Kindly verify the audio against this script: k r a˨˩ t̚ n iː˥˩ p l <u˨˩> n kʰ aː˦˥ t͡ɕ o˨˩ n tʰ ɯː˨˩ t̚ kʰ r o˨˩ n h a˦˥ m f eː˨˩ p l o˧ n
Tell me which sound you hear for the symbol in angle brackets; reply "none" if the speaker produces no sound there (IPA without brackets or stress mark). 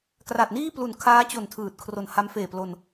u˨˩